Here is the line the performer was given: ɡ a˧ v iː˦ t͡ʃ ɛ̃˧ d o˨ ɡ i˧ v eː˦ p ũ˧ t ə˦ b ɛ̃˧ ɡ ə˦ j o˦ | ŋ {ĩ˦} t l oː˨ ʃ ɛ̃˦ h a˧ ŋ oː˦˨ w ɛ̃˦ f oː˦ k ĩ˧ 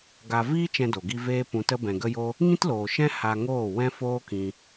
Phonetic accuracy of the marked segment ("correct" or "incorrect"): correct